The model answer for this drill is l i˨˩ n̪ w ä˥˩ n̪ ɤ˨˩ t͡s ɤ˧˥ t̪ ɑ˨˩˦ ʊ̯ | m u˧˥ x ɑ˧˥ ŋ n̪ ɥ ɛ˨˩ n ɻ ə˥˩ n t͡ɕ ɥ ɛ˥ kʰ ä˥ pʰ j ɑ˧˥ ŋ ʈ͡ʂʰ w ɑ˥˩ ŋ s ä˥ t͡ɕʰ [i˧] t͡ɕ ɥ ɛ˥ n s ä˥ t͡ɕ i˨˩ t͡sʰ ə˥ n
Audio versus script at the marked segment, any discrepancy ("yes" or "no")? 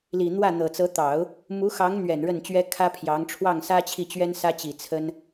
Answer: yes